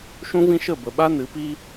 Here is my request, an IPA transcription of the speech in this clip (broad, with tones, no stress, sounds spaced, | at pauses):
ʃ ũ˦ v ĩ˦ ʃ ə˦˨ b ə˨ ɓ a˦ n ɨ˨˦ p i˦